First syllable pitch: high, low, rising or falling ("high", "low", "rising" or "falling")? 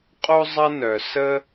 high